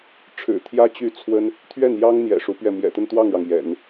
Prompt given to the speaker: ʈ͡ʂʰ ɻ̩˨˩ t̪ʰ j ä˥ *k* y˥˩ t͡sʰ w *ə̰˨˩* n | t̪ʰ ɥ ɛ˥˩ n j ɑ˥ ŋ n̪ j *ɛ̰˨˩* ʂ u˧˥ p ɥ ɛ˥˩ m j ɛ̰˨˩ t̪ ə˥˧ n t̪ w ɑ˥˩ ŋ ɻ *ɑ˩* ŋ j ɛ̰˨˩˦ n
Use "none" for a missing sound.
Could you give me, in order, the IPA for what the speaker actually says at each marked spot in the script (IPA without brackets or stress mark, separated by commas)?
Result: t͡ɕ, ə˥, ɛ̰˨˩, ɑ˩